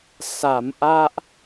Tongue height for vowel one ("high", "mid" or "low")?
low